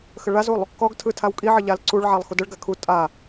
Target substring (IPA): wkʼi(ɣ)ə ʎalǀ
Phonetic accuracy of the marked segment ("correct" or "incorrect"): incorrect